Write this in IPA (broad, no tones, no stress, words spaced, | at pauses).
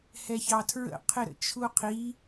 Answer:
hɛçɑtʰɹə̰ qʰɪɾə̰t͡ʃʰuqʰi